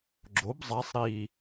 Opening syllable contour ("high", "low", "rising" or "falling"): rising